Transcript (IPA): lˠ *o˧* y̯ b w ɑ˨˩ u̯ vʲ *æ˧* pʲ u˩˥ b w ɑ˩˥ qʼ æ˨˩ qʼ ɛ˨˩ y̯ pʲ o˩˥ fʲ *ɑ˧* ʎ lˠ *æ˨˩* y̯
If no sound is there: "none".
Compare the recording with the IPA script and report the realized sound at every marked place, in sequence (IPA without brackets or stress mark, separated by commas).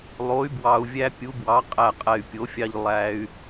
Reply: o˩˥, æ˧, ɑ˧, æ˧